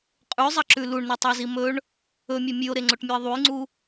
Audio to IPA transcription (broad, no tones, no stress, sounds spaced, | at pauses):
qʼ ʉ zˤ ɐ ǁ ʉ l u ɳ n u tˤ o z i m ɵ ɳ | ɵ mʲ o mʲ ʉ o̯ ɾ e ŋ͡ǀ o ʈ mʲ u e̯ ðˤ u j ŋ͡ǀ u